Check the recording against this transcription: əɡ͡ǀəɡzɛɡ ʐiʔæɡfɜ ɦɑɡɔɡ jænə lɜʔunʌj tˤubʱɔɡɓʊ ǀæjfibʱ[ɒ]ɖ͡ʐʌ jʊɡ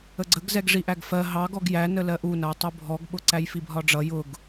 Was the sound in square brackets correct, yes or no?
yes